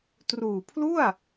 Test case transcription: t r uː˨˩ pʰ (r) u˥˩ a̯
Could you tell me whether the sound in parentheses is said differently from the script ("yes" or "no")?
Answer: yes